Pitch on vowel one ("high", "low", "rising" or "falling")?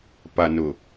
low